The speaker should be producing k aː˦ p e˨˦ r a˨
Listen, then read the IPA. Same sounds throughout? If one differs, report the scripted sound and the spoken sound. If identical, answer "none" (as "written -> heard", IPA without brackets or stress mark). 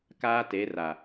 p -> t